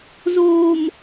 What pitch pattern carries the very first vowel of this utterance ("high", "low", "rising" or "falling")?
low